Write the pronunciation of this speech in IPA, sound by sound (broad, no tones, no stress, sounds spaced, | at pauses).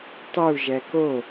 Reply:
tˤ u ʒ ɛ k o